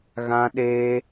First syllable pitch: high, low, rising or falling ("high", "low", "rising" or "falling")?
high